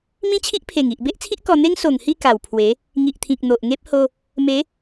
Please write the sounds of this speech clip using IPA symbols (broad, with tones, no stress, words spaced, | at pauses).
mĩ˦t͡ɕʰi˦ʔpʰe˨˩ŋi˨ʔ be˦ʔt͡sʰi˦ʔ kɔ˧n̪e˦ŋ so˨˩ŋhi˥˧ ka˨˩wpʰwe˨˦ | ŋi˨ʔt̪ʰĩ˨k̚ n̪o˨ʔŋe˦p̚ ho˧ | me˨˦